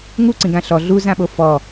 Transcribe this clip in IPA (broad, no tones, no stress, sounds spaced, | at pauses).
ŋ u ǀ ĩ ɡ ã ɬ ɔ ɮ u z ã ɓ o f ɔ